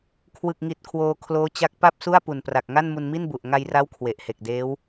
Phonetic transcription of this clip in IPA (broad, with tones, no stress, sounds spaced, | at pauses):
kʰ w ɯ˨˩ k̚ ŋ i˨˩ t̚ kʰ w oː˧ kʰ l oː˦˥ t͡ɕ a˦˥ k̚ p a˥˩ p̚ s u˥˩ a̯ p u˨˩ n p r a˨˩ k̚ ŋ a˥˩ n m u˧ n m i˥˩ n b u˨˩ ʔ ŋ a˧ j r a˦˥ w kʰ w e˨˩ ʔ h e˨˩ k̚ d eː˦˥ w